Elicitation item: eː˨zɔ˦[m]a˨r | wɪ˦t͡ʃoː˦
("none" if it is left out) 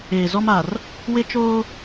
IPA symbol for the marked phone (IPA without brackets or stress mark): m